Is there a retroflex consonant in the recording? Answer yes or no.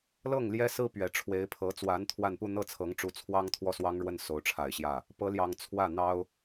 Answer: yes